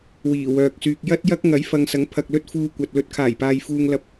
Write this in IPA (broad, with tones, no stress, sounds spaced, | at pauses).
w iː˨˩ w œː˨ k̚ s yː˨ k̚ j ɐ˥ t̚ j ɐ˥ k̚ ŋ ɐ˨˥ j f ɐ˨˧ ŋ s ɐ˨˥ ŋ pʰ ɐ˧ k̚ l ɵ˥ t̚ f uː˧ kʷ ɐ˨ t̚ l ɵ˧ t̚ kʰ aː˨˩ j p aː˨ j f uː˨ ŋ l ɐ˨ p̚